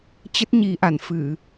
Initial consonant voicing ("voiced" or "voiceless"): voiceless